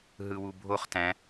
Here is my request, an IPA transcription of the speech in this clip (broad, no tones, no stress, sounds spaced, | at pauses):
ɦ ɯ w u bʱ o χ t æ̃